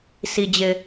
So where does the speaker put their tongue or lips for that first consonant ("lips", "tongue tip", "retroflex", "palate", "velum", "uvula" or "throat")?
tongue tip